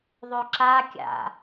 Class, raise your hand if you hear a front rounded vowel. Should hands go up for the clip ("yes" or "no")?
no